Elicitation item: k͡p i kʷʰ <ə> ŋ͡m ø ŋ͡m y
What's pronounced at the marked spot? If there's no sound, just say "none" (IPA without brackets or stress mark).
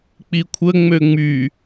ə